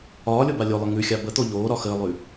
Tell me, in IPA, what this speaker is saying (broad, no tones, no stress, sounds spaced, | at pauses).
ɒː lʲ o b a lʲ o lˠ ə ŋ ʉ xʲ a b ə t̪ o ʎ oː ɾ ɒ x əː lˠ ʉ